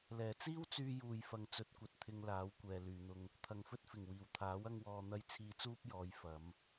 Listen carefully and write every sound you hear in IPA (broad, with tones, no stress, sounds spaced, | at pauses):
l ɛː˨˩ t͡s iː˥ w t͡s yː˧ j uː˨ j f ɐ˨ ŋ t͡s ɵ˨˥ t̚ kʷ ɐ˨ t̚ t̪ʰ ɪ˧ ŋ l aː˨˥ w kʷ ɛː˨ l yː˨ n̪ ʊ˧ ŋ | t̪ʰ ɐ˨ ŋ f ɵ˥ t̚ f ɪ˨˩ ŋ w iː˨˩ w t̪ʰ aː˨˥ w ɐ˥ ŋ w ɔː˧ n̪ ɐ˥ j t͡sʰ iː˧ t͡s uː˥ p̚ j ɔː˨˧ j f ɐ˨˧ m